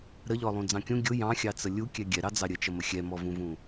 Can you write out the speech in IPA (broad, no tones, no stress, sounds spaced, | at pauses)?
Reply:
ɾ ə ʎ ɔ lˠ ũ d͡z ɑ̃ kʲ ũ ɡʲ ʊ j ɑ̃ xʲ ɑ t͡s ə lʲ u kʲ ɛ ɡʲ ɛ ɾ ɑ d͡z ɑ ɾʲ ə t͡ʃ ʌ m ə xʲ ɛ m ɔ v ũ v ũ